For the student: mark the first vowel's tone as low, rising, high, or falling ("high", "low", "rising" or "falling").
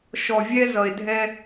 low